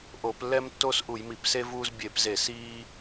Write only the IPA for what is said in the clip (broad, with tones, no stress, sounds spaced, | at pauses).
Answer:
ʔ o˧˩˧ p lː ɛ˦ m tː o˦ s ʔ u˧˩˧ j m i˧˩˧ p s e˦ v uː˦ z bʲ e˧˩˧ p z e˧˩˧ s iː˦